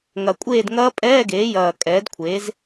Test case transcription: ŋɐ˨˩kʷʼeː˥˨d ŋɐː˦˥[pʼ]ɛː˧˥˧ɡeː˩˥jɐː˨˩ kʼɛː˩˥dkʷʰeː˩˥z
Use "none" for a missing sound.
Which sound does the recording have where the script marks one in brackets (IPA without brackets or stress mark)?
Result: pʼ